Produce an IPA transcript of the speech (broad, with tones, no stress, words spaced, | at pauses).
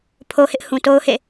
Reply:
pʰo˦hɪ˦ʔ hũ˨to˦ʊ̯hḛ˦˨